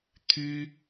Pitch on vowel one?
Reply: high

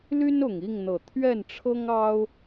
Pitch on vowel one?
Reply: high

